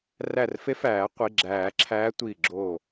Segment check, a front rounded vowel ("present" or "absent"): absent